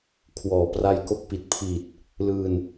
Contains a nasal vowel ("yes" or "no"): no